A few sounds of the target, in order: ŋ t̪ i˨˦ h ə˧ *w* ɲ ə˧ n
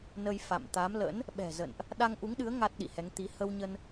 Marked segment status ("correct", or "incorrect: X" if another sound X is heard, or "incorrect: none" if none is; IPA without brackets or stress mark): correct